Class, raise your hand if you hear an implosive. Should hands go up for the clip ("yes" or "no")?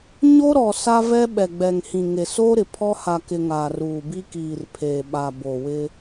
yes